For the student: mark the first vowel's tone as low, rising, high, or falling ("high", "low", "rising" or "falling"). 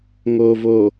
low